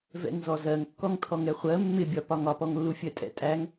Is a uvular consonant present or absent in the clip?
present